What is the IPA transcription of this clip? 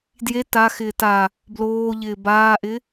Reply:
d j e t a x ɪː t a | b l oː ʎ ɪː b aː ʔ ɪ

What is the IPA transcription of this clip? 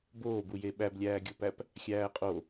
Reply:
b oː b u j e ɓ æ b lʲ æː ɡʲ o p æ p | xʲ æː qʼ o

